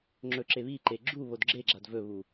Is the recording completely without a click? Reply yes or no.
no